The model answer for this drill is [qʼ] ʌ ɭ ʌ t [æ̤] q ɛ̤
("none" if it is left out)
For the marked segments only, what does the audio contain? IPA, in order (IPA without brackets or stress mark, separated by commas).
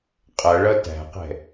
qʼ, æ̤